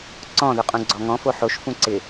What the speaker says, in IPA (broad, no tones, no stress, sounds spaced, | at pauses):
ǀ ɔ̃ ð ʊ qʼ ũ ɡ͡ǀ ɔ ŋ ɔ̃ f o ħ o ʃ f ũ ǀ ɪ